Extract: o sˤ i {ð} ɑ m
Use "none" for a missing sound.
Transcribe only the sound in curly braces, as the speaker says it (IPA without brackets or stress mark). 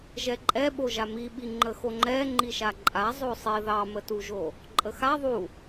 ð